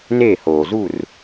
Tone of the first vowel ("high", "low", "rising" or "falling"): falling